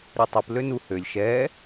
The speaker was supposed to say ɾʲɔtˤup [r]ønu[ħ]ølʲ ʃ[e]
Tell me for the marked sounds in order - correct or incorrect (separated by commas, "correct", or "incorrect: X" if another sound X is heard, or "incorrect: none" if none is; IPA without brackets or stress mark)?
incorrect: l, incorrect: h, incorrect: ɛ